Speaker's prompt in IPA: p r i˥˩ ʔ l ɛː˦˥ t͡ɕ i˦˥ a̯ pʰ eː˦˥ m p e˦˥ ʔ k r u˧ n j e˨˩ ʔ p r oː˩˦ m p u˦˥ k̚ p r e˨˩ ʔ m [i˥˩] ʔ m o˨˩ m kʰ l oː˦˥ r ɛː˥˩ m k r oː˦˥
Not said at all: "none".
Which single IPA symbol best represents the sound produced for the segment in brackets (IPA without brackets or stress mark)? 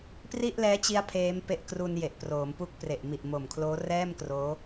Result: i˨˩